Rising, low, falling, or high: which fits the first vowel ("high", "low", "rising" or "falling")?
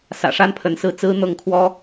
low